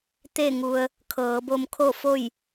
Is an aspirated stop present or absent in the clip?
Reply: present